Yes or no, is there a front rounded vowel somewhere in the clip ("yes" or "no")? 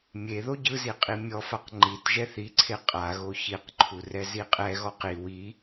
no